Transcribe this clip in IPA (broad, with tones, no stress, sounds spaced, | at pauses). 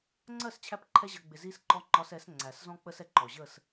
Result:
ŋ͡ǀ ɜ˦˨ s t͡ɕʰ æ˧ p ǃʰ ɛ˧ ʑ ʌ˨ ɡ͡b ɪ˨ z i˧ s ǃ ɔ˧ ŋ͡ǃ ɒ˧ s ɛ˨˦ s ŋ͡ǀ æ˨ s z ɔ̃˦ k͡p ə˦ s ɛ˧ ǃ ɔ˨ ʑ ə˦˨ s